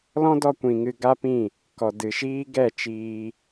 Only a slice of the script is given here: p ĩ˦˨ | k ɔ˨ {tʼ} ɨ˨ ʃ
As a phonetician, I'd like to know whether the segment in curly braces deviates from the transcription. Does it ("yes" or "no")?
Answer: yes